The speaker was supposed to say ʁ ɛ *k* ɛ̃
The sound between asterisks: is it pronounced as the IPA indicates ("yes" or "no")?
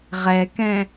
yes